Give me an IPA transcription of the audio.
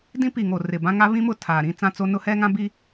dĩ˦pi˨ ŋo˨ rɪ˨bã˦ŋa˦ βĩ˦mʊ˦˨ tʰaː˨ɾĩ˦ t͡sã˦t͡so˦ nʊ˦hɛ˦ŋã˦ bi˦

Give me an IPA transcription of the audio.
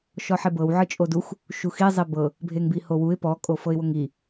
ʃɔħebɤw ʕɯt͡ʃʼodux | ʃuxi zˤibɤ | bʱeŋbihowuɪ̯ pɔ kʼofɤɪ̯woŋi

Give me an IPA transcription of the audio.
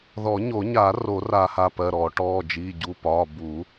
ðɔ˨˩˦ɲo˨˩˦ɲa˨˩˦ ro˨˩˦ra˨˩˦ ha˩˧˩pɜ˩˧˩ɾɔː˨˩˦ ʈɔː˩˧˩d͡ʒiː˩˧˩ ɟu˩˧˩pɒː˩˧˩ bu˨˩˦

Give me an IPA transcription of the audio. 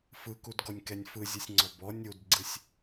fɯkudɡɔnʲ kɛnʲfɯzʲɯsʲŋ͡ǀɔ bɔ nʲudɡ͡ǀɯsʲ

